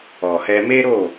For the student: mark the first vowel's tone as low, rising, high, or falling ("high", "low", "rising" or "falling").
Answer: low